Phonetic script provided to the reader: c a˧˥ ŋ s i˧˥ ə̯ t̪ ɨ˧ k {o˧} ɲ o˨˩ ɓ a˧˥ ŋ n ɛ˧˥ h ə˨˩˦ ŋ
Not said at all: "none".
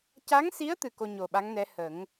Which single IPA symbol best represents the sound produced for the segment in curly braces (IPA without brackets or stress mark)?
o˧